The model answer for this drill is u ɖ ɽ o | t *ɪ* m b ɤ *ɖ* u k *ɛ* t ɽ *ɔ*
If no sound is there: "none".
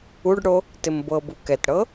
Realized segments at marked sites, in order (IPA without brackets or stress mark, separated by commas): ɪ, b, ɛ, ɤ